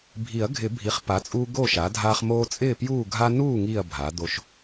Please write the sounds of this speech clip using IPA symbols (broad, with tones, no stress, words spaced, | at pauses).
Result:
bʱi˨˩˦ɐ̯ɡʱɪ˨˩˦bʱi˩˥χ pa˩˥t͡sʼuː˦ ɡo˥˨ʃa˩˥dʱaː˦χ moː˦t͡sʼɪː˥˨pjuː˥˨ ɡʱa˦nuː˥˨ ŋiː˥˨ɐ̯bʱa˩˥d̪o˦ʃ